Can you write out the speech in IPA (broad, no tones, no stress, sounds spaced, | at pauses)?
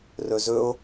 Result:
r ɵ z ɵ o̯